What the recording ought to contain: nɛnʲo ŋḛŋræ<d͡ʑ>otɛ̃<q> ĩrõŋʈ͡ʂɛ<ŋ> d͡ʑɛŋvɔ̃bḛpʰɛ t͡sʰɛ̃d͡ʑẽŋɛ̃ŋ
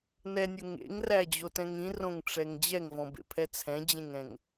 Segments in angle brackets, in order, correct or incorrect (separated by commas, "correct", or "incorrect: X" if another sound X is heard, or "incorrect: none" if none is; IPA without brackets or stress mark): correct, incorrect: ŋ, correct